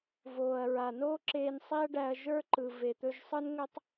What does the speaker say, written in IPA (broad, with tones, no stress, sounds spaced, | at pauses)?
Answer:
v oː˨ ɐ̯ ɹ a˨ n oː˦ ǁ eː˧ n sˤ i˦ ɐ̯ ɖ æ˧ ɐ̯ ʒ ə˞˦ ǃ ɯ˨ v e˨ t̪ ɵ˧ ʒ sˤ ɯ˦ n ŋ ɵ˦ tˤ